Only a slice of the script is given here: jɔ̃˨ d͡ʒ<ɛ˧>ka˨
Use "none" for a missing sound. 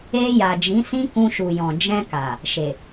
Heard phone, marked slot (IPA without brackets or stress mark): ɛ̃˧